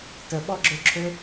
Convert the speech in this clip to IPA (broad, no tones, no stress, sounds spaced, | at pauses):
t ə ɓ ɔ ɡ͡ǁ ø ǁʰ ø